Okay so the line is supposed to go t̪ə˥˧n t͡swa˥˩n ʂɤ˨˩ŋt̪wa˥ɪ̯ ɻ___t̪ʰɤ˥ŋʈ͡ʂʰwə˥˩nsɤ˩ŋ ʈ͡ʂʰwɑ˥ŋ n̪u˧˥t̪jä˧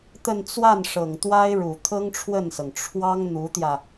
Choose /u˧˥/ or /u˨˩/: u˨˩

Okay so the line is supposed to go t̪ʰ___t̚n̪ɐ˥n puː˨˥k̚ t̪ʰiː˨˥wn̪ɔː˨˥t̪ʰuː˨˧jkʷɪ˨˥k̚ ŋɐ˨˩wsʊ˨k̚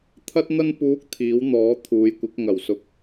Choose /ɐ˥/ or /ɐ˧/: ɐ˥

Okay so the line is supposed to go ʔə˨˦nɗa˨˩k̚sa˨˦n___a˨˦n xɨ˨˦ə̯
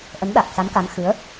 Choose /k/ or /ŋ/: k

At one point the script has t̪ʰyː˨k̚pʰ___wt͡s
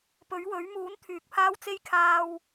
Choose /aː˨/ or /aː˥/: aː˥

